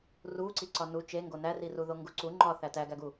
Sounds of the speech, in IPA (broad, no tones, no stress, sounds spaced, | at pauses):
r u ǀ i ǀ ɒ n u t͡ʃ e ŋ ɡ o n æ r i r u ð o ŋ ɡ u ǀ u ŋ͡ǃ ɒ θ æ t æ ɡ æ ɡ u